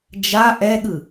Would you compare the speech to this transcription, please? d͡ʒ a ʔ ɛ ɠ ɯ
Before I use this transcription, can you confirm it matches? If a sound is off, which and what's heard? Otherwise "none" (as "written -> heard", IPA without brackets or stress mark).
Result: none